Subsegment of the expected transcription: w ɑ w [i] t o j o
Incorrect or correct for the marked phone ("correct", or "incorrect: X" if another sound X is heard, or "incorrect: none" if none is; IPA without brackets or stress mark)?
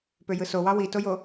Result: correct